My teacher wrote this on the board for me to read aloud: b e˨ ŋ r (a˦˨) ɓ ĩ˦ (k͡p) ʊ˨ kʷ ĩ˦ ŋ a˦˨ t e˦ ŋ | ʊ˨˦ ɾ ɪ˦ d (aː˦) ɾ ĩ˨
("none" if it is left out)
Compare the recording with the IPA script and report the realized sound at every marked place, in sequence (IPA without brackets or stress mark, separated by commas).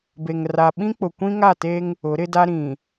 a˨, k͡p, a˦